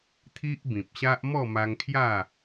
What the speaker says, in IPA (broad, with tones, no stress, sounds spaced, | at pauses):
t̪ʰ i˦ ʔ b ĩ˨ p̚ ɕ a˦ ʔ m ɔ˥˧ m a˧ ŋ kʰ j a˥˧